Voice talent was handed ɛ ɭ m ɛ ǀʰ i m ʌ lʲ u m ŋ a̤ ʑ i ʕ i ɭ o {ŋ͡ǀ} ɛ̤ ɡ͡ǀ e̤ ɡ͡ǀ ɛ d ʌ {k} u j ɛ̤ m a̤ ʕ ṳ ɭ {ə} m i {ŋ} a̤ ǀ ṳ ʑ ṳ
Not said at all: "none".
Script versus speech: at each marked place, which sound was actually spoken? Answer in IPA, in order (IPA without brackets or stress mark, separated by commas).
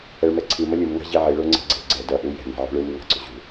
ŋ͡ǀ, ʔ, ɯ, ŋ